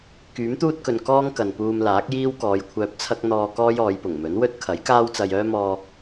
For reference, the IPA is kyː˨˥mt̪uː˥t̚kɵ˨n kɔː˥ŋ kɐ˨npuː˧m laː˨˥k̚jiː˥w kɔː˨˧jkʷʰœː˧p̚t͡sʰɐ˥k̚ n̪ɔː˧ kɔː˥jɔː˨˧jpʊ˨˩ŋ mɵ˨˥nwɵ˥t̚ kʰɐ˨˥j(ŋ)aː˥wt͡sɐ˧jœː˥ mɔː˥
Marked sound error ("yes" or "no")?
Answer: yes